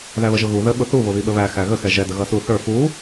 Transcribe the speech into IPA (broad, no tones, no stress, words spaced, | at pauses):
ðæβəʒʊɣu ðə ɓʊθu βʊβiɓəβæ xæɣə xɛʒɛ dəɣʌsu θə˞ fu